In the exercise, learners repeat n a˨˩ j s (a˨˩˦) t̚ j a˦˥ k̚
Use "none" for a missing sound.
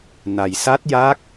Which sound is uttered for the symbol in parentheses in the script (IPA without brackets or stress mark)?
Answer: a˦˥